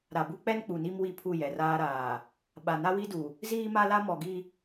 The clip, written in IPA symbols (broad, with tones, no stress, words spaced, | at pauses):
ɾa˨bu˦k͡pɛ˦n k͡pu˨ni˦mwi˦˨ pʰu˦˨jɛ˨raː˦ɾaː˨ | ɓa˨na˦wi˦du˨ | ziː˦ma˦la˦ mɔ˨ɡi˦